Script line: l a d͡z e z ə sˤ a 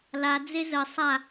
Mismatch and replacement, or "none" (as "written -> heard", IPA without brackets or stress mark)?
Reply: none